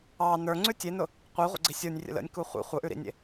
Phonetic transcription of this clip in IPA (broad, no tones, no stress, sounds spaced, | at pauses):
ɑ n ə˞ ŋ͡ǀ ʉ tʲ e n ʊ | qʷ i ʁʷ ə̰ ɡ͡ǀ i sʲ ə˞ nʲ rʲ ə̰ l ə̰ nʲ k u χʷ ḭ χʷ ə ʔ ʉ ɾ ḭ nʲ ḛ